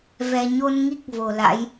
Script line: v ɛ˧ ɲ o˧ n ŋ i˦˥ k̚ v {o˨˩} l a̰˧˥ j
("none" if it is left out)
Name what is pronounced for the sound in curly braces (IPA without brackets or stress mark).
o˨˩